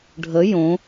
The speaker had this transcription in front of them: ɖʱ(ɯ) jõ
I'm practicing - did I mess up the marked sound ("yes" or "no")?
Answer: yes